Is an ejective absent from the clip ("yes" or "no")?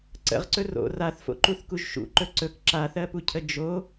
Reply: yes